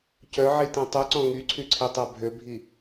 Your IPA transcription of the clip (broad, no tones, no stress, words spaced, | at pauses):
cœʕitĩ tˤuǀɔ̃ ŋyǀʰyǀʰitˤa bʱøbʱi